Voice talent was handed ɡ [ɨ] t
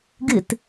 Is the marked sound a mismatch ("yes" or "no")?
no